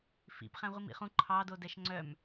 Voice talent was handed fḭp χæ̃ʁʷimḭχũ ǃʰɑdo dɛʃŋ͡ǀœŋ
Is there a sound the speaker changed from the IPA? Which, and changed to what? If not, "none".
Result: ŋ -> m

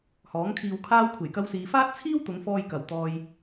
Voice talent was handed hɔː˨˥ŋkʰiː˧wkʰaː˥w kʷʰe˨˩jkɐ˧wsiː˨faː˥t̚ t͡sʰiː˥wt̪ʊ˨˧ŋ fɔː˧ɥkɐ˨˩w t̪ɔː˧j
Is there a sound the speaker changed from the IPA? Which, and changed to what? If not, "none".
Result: ɥ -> j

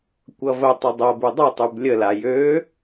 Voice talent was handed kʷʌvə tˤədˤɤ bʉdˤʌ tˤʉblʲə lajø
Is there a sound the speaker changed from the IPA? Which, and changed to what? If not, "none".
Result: none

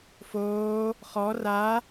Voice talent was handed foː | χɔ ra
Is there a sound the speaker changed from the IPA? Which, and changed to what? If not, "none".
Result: none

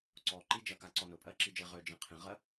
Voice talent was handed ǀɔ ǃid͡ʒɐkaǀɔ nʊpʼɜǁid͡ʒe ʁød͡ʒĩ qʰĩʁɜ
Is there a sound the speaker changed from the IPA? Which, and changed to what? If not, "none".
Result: none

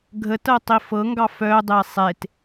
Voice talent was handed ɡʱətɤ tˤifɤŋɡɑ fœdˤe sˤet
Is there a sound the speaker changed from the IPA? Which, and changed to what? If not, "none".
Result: none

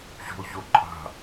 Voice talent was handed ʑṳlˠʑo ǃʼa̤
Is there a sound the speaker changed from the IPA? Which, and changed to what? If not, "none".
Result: none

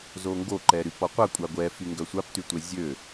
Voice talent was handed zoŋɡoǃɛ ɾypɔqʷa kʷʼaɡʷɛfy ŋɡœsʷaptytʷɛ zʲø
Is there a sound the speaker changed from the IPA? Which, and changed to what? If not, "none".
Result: none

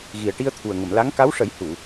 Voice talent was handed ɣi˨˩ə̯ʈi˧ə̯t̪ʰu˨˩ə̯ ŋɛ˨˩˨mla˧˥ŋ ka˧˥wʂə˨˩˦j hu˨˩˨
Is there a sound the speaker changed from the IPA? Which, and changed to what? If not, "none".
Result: ɛ˨˩˨ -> ə˨˩˨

